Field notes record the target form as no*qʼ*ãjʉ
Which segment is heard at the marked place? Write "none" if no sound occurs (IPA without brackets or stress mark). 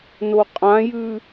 qʼ